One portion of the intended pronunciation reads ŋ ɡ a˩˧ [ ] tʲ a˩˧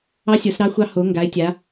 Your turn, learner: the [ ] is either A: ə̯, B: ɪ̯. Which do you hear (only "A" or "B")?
B